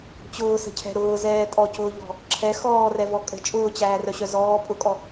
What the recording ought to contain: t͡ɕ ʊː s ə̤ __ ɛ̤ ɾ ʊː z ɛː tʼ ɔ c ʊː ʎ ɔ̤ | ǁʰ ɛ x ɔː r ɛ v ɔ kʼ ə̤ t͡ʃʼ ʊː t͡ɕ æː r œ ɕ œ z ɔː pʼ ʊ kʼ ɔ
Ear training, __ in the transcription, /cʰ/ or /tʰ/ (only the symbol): cʰ